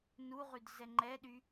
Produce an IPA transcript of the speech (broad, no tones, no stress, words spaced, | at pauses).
nuʁyd zɛŋ͡ǃɛɗy